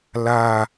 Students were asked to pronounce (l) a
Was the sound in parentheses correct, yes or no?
yes